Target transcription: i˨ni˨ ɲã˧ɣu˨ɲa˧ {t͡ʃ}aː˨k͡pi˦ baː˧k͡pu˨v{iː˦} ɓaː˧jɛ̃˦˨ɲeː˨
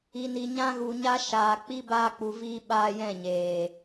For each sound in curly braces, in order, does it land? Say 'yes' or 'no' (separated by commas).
no, no